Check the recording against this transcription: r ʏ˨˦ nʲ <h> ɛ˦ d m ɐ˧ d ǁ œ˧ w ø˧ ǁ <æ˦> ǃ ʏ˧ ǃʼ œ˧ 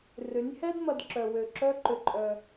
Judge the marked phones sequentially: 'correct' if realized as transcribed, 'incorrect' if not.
correct, incorrect: œ˦

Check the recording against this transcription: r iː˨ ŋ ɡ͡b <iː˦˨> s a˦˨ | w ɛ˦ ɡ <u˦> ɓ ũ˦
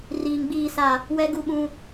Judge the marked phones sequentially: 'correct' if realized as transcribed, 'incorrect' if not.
correct, correct

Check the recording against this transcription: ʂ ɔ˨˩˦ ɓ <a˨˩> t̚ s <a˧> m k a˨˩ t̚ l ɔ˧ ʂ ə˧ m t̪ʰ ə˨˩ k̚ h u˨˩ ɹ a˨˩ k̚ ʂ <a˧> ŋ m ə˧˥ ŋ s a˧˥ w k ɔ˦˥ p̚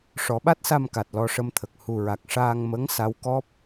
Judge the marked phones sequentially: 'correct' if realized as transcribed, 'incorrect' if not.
incorrect: a˦˥, correct, incorrect: aː˧

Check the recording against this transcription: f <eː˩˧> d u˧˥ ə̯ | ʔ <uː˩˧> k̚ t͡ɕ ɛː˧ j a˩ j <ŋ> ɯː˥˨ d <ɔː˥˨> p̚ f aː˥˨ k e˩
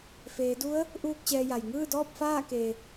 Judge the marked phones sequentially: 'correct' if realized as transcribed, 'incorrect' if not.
correct, incorrect: uː˥˨, correct, correct

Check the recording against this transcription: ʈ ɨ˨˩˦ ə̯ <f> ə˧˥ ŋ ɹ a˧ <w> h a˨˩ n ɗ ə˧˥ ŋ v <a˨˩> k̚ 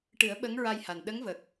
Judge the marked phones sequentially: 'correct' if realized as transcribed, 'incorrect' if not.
incorrect: ɓ, incorrect: j, incorrect: ə˨˩

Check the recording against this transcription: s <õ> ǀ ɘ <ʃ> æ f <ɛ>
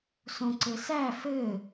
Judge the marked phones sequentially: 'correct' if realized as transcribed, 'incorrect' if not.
correct, incorrect: s, incorrect: ɘ

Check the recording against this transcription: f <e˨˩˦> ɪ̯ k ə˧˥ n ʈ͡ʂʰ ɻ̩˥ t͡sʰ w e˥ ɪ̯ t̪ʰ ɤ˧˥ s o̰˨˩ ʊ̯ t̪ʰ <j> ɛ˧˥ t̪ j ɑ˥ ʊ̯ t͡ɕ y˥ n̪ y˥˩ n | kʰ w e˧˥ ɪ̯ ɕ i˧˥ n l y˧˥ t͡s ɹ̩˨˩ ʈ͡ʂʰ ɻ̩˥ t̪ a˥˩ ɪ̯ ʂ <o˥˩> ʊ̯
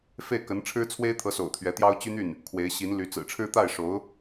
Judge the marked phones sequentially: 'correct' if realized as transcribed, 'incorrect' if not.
incorrect: e˥˩, incorrect: ɥ, incorrect: o˧˥

